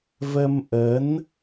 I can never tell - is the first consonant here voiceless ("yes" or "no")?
no